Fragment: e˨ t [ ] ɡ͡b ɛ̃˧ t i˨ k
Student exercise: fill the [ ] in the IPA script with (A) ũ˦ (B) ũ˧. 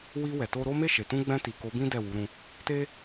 B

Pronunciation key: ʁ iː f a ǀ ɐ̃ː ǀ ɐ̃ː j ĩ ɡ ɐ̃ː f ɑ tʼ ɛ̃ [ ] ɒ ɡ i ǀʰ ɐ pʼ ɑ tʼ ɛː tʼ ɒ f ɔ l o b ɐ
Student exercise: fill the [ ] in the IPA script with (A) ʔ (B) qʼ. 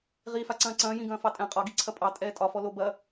B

